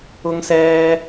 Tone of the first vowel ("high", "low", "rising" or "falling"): high